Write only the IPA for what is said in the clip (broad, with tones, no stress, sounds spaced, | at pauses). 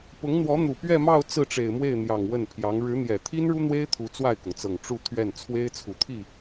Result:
p ʊ˧˥ ŋ n̪ w ɔ˧˥ n̪ u˨˩ p ɥ ɛ˥˧ m ɑ˥˧ ʊ̯ t͡s ɹ̩˥˩ ʈ͡ʂ e˨˩ ɪ̯ m w e˥˩ ɪ̯ n̪ j ɑ˨˩ ŋ w ə˥˩ n pʰ j ɑ˧˥ ŋ ɻ ɻ̩˧˥ n̪ j ɛ˨˩ t̪ʰ i˥ n ɻ u˥ n̪ w e˥ ɪ̯ t̪ʰ u˧˥ t͡s w a˥˩ ɪ̯ k ʊ˩ ŋ t͡s ɤ˨˩ ŋ ʈ͡ʂ u˥˧ t̪ʰ ɥ ɛ˥˩ n t͡sʰ w e˥ ɪ̯ t͡sʰ u˨˩ t̪ʰ i˥˩